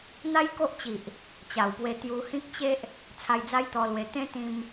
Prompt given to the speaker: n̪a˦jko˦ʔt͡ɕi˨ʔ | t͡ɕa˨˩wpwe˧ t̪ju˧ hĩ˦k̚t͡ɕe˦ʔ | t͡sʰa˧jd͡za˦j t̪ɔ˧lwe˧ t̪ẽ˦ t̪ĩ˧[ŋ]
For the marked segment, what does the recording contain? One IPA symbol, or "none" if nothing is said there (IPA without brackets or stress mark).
m